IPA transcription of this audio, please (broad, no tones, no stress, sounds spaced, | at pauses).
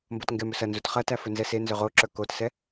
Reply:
m b o t ŋ ɡ ɛ m ɵ s ɐ n z u t χ ɐ t æ f ɵ n z ɛ s e n z ɵ ʁ o ǁ ə˞ k o t s ɛ